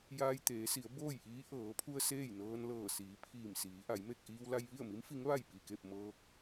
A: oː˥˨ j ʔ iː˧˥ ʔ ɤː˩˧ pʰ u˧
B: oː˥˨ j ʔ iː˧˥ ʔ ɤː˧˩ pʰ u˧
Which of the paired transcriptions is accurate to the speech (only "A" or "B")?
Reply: A